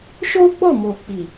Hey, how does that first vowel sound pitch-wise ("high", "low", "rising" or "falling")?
high